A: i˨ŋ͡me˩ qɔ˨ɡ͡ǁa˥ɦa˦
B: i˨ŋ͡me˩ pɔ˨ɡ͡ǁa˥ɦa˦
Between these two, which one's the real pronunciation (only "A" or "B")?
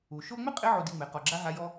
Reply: A